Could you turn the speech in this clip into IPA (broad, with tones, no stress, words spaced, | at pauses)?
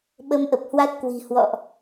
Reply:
ɓə˧mʔə˨˩p̚hwa˦˥t̚ kwi̤˨˩hwɔ̰˧˨ʔ